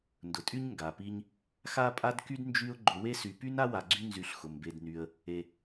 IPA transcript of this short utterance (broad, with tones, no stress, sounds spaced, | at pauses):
n d ʊ˩ tʼ y˦ ɲ ŋ ɡ a˩ p i˦ ɲ | x a˥ pʼ a˥ d k y˥ d n d͡ʒ y˦ ʊ̯ ɡ͡ǃ ʊ˨ w e˦ s y˨ p y˥ n a˥ w a˨ ɡ͡ǀ y˦ n z y˨ ɬ x ʊ˩ m b e˨ d n y˨ ə̯ | e˨